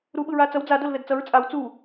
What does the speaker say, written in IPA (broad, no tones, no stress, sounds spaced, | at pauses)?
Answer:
ɾ u ɓ ɯ ɹ a t͡s ʌ w d͡z a d o l ð ɛ d t͡s ʌ ɹ t͡sʼ a w t͡s u